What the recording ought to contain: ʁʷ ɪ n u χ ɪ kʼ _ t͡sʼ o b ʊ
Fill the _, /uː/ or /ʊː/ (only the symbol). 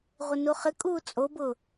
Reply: uː